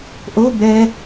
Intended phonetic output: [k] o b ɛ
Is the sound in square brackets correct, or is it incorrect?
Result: incorrect